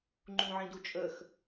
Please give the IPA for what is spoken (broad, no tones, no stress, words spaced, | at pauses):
ŋ͡ǃũʕĩdut͡ʃʼəx